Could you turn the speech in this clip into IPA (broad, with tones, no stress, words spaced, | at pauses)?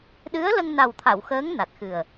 ɗɨ˧˥ə̯lə˧ŋna˨˩wt̪ʰa˨˩˨w xəː˧˥ŋ na˨˩t̚xɨ˨˩ə̯